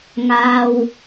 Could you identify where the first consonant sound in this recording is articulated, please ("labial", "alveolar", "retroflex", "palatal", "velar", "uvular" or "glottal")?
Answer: velar